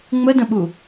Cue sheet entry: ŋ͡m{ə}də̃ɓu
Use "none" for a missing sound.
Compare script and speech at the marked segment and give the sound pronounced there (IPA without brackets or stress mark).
ə